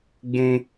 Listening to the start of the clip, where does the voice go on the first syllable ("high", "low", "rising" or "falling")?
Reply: high